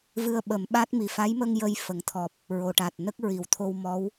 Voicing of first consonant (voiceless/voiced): voiced